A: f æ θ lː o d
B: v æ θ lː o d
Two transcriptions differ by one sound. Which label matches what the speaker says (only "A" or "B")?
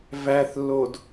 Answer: B